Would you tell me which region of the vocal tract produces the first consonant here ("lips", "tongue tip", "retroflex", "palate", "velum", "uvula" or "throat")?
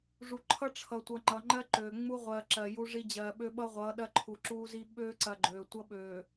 retroflex